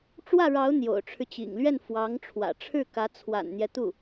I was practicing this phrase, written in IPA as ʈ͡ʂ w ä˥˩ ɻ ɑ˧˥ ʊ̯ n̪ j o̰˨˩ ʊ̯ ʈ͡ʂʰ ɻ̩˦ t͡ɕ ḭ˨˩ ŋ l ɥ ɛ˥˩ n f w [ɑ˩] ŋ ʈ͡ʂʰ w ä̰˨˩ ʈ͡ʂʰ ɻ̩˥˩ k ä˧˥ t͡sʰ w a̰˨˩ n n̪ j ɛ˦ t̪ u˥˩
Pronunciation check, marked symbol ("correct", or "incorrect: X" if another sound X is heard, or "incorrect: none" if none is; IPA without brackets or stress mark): incorrect: ɑ˧˥